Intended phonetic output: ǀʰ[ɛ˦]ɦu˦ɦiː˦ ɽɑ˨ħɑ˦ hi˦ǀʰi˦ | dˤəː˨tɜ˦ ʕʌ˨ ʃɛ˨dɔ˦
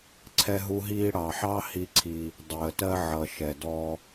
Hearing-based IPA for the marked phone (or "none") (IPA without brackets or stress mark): ɛ˦